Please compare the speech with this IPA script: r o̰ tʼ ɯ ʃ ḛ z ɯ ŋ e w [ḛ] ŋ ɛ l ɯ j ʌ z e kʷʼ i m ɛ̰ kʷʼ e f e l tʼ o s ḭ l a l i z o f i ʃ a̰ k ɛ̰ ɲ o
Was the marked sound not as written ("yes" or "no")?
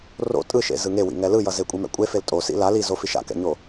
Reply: yes